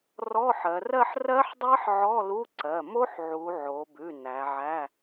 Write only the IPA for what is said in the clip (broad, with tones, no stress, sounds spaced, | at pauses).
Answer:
r ɔ˧˥˧ ħ ɜ˩˧ r ɜ˥˧ ħ r ɜ˦˥ ħ dˤ ɜ˦˥ ħ ʕ ɔ˧˥˧ l u˧˥˧ ǀ ɜ˩˧˩ m o˦˥ ħ ʕ u˩˧ ʕ o˩˧ b ʉ˩˧˩ n æ˩˧ ʕ æ˧˥˧